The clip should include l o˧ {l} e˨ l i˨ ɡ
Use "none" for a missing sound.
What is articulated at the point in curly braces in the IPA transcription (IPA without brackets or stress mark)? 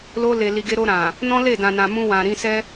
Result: l